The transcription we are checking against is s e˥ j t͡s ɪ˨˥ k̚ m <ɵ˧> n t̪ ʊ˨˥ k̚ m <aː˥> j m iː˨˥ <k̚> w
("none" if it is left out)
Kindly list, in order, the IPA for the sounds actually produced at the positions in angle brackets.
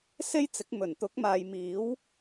ɵ˨˩, aː˨, none

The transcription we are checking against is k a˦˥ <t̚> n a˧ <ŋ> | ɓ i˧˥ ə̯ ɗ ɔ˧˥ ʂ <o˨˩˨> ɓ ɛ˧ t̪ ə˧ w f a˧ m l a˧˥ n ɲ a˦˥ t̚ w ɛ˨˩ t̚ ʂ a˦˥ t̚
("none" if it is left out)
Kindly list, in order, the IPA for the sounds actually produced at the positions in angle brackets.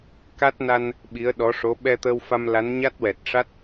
t̚, n, o˧˥

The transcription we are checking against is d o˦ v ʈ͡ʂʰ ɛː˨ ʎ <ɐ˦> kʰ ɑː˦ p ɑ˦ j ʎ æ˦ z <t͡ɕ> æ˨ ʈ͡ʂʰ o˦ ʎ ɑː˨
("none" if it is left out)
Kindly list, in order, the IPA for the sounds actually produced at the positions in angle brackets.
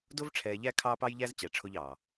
æ˦, t͡ɕ

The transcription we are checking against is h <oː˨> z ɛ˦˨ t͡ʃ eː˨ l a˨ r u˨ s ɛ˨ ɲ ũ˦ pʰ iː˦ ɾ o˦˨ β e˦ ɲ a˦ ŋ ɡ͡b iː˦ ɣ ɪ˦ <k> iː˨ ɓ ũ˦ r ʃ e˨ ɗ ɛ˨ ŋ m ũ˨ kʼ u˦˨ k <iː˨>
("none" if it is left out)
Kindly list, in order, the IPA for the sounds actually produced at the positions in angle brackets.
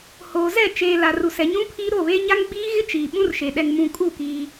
oː˨, t͡ʃ, iː˦

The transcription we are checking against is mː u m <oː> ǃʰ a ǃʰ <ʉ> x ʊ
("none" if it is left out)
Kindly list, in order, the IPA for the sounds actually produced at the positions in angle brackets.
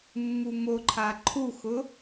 o, u

